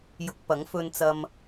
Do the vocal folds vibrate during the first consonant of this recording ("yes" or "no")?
yes